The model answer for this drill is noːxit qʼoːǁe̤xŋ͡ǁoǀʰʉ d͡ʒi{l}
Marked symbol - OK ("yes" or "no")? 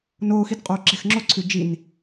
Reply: no